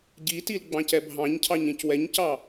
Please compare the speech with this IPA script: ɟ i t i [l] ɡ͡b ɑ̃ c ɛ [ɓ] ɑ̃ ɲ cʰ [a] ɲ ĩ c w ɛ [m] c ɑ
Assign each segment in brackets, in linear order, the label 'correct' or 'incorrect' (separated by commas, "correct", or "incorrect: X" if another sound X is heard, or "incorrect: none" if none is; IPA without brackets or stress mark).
correct, incorrect: bʱ, incorrect: ɑ, incorrect: ɲ